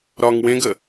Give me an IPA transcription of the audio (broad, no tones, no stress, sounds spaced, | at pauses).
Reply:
ɾ ɒ ŋ w ẽ ɡ ə